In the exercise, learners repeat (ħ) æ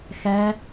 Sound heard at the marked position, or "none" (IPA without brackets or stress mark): x